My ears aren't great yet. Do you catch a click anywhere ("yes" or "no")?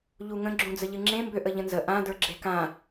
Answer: yes